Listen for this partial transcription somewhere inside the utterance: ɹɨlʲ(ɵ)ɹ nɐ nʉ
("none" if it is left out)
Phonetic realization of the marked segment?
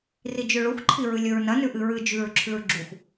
ɵ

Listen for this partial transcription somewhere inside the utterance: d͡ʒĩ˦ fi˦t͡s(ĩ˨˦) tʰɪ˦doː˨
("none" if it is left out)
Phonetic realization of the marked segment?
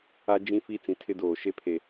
ĩ˨˦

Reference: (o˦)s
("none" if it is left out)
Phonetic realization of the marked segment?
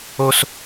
o˦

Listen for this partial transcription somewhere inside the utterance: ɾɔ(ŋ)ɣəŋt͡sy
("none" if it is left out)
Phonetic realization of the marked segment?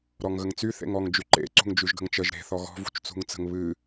ŋ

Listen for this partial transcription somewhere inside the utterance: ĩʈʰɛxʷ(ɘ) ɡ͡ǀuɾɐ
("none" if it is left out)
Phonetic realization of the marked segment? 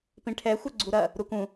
ɘ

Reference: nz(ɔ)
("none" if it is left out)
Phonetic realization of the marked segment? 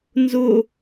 ʊ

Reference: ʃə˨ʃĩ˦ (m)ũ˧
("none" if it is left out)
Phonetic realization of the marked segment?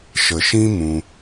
m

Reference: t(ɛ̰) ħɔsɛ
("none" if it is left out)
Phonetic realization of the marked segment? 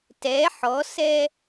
ɛ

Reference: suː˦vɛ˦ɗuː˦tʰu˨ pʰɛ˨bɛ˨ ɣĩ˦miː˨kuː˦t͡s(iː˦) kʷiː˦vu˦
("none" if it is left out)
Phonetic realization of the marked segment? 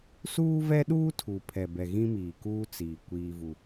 iː˨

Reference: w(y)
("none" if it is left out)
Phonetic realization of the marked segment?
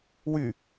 y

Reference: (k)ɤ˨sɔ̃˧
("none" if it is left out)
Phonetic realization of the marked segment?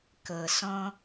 k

